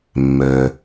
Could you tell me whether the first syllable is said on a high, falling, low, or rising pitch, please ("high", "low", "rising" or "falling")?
low